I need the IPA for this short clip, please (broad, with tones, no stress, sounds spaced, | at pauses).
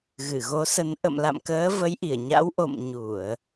ɣ ɨ˧˩ ɣ o˨˦ s ə˨˦ n ʔ ə̰˧˨ m l a̰˧˨ m k əː˨˦ v ə˨˦ j ʔ i˧˩ ə̯ ɲ a̰˧˥ w ʔ o̰˧˨ m ɲ u˧˩˨ ə̯